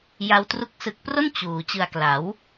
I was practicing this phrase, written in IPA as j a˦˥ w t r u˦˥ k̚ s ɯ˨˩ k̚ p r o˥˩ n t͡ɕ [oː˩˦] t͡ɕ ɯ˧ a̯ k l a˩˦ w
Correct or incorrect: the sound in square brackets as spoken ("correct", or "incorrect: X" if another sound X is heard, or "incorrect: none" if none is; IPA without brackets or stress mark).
incorrect: uː˩˦